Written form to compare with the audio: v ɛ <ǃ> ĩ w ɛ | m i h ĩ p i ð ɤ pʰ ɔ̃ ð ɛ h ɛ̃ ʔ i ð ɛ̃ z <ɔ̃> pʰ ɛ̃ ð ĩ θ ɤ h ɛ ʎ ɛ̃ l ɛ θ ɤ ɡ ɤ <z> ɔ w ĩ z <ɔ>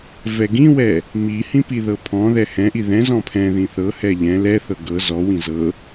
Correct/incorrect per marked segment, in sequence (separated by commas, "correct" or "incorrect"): incorrect, correct, correct, incorrect